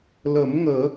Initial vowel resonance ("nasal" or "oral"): oral